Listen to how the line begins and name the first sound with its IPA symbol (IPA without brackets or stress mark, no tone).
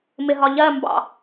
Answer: m